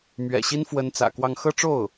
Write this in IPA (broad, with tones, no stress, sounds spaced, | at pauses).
m ɥ ɛ̰˨˩ ɕ i˥ n f w ə˧˥ n t͡s ä̰˨˩ k w ɑ˥˧ ŋ x ɤ˥˧ ʈ͡ʂ o˥˩ ʊ̯